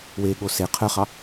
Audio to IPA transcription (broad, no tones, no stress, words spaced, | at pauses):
weɠo se qʰœχɑ